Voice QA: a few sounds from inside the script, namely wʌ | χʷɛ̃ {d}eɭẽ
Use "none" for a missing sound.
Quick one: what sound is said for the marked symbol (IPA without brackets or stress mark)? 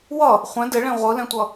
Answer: d